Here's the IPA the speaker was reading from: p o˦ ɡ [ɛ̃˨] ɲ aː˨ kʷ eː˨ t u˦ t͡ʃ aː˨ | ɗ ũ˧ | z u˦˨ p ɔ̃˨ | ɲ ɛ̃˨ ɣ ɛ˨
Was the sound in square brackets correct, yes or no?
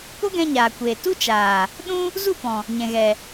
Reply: no